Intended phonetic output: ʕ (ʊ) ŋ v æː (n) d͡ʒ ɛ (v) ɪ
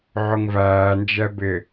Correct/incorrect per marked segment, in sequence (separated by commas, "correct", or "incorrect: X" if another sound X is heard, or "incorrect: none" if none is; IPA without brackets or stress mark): correct, correct, incorrect: b